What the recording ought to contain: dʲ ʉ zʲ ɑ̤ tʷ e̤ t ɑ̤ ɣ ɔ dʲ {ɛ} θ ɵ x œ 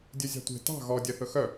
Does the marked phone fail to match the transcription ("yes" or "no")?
no